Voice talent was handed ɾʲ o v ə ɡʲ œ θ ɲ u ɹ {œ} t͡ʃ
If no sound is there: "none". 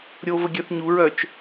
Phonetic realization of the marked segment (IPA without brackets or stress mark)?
œ